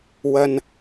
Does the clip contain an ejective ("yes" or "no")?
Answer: no